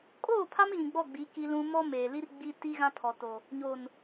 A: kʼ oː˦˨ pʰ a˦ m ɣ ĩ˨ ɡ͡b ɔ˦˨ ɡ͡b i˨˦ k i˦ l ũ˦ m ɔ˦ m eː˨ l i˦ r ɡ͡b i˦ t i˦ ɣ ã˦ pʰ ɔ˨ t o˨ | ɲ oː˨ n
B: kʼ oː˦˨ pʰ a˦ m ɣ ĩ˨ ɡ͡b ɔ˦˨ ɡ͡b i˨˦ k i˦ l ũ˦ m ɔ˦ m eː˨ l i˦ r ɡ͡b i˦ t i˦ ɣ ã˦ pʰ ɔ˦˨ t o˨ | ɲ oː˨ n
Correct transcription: A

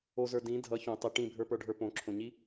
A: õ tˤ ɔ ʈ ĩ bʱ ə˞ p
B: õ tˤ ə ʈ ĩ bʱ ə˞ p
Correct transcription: B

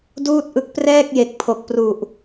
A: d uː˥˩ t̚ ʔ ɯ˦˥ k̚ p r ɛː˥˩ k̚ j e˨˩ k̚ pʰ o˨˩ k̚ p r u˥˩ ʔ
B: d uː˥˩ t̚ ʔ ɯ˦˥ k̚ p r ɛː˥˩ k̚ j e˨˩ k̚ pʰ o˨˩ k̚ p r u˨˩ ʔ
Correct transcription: B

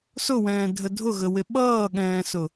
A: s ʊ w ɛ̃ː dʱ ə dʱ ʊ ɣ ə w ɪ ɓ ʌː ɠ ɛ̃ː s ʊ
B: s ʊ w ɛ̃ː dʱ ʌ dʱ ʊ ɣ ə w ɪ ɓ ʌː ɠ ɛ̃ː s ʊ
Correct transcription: A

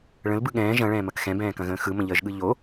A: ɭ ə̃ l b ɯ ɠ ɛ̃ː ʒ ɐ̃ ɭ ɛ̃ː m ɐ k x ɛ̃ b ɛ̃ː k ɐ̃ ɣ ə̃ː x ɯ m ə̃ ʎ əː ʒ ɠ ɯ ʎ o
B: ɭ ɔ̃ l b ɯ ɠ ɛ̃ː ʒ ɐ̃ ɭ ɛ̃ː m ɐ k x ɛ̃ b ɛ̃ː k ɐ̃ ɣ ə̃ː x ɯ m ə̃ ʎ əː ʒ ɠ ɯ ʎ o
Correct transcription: A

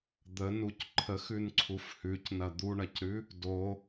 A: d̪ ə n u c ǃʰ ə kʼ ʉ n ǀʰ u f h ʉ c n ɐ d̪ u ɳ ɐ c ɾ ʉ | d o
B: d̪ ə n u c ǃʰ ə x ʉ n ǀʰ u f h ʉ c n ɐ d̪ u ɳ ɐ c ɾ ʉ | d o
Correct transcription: B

